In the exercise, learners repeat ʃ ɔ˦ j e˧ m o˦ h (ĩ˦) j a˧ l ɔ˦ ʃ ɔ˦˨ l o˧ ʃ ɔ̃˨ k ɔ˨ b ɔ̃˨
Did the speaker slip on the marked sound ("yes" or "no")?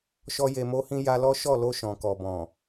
no